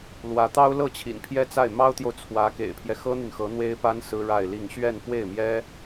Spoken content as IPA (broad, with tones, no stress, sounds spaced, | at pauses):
l w ä˧˥ t̪ ɑ˥ ʊ̯ l ɤ˥˩ t͡ɕʰ ḭ˨˩ n pʰ j ɛ˥ t͡s a˥˩ ɪ̯ m ɑ˥ ʊ̯ t̪ j o˨ ʊ̯ t͡sʰ w ä˧˥ k ḛ˨˩ ɪ̯ pʰ j ɛ˦ x ɤ˥ n̪ y˨ n x ɤ˧˥ n̪ w e˥ ɪ̯ p a˥ n s ɹ̩˥ ɻ a˥˧ ɪ̯ l i˥˧ ŋ ɕ ɥ ɛ˥˧ n f w e˥˩ ɪ̯ m j ɛ˥